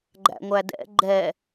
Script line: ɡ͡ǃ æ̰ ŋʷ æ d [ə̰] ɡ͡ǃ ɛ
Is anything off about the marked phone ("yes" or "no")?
yes